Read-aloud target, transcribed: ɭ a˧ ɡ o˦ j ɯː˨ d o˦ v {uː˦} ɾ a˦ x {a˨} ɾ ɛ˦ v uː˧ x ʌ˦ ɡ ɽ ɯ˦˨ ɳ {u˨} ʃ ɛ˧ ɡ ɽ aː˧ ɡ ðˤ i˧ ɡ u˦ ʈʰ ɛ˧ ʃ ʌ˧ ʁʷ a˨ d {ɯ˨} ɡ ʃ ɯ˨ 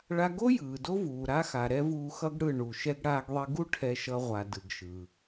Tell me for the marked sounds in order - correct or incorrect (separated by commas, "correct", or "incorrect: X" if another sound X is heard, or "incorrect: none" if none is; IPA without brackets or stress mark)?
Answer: incorrect: uː˨, correct, correct, correct